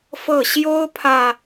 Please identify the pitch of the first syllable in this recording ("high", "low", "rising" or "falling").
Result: falling